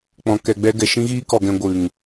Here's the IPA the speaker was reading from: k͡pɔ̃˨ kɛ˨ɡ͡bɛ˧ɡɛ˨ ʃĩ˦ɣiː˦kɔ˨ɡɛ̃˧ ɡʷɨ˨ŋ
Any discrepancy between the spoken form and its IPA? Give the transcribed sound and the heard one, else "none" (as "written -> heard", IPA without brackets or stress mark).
none